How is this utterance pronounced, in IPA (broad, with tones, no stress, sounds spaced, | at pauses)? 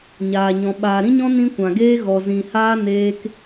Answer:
ɲ aː˨ ɲ ɔ̃˨ ɓ aː˨ ɾ ĩ˧ ɲ ɔ̃˧ n ĩ˧ kʷ ã˨ ɡ eː˧ ɣ ɔ˨ z ĩ˨ h aː˧ n eː˧ k